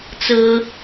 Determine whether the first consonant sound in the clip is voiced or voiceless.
voiceless